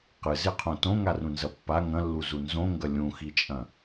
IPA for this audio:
q ɨ z e qʰ õ t õ ŋ a r ũ n z ɐ pː a ŋ ɐ̃ lː u z u n z õ ŋ ɡ ɐ lʲ ũ x i t͡ʃʼ ɐ̃

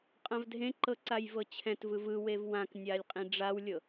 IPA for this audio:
qʼ ã v dʱ ẽ ǃ ɤ ǀ a j v ɤ t͡ɕʰ ɛ̃ t v ɯ v ɯ w e v w ã k nʲ a lʲ qʼ ĩ ɖ͡ʐ a w lʲ ɤ

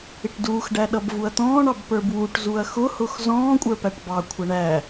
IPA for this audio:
ɪ ʈ d uː x ɖ æ ɗ ʌ b v u ɐ̯ t̪ ɔ̃ː ɳ ɑ b p ə˞ b w u ʈ z u ɐ̯ x ʊ h ʊ x z ɔ̃ː kʷʼ ə˞ p æ ʈ b ɑ kʷʰ ʌ ɳ æ

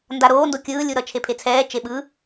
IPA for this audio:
n d a ɾ oː n d o kʲ ɯː lʲ u ɾ ʌ t͡ʃʰ e pʰ e t͡sʰ ɛː t͡ʃ e ɓ ɯ

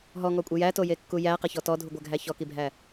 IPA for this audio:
ɦ ɔ ŋ ɔ kʷʼ e j æ t o j e kː u j æ q e ç ɔ t ɔ dʱ u ɡʷ æ ɡʱ æ ç ɔ k i bʱ æ

